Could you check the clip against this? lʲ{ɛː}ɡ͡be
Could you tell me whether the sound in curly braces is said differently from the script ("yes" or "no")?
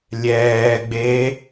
no